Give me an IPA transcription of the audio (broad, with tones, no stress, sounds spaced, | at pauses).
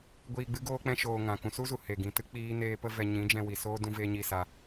ɡʷ iː˧ ɡ͡b ɨ˦ ɡ oː˦ k͡p ɛ̃˦ ʃ oː˧ ŋ ã˨ k ũ˨ s u˦ z u˨ h e˨ ɡ ĩ˨ t ɨ˦ k͡p iː˦ n eː˦ p ə˦ v ɛ˧ ɲ ĩ˨˦ d͡ʒ ɛ̃˧ w i˨ s oː˦ d ũ˦ v eː˦ ɲ i˦˨ s a˧